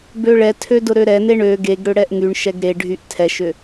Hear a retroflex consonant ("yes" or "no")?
yes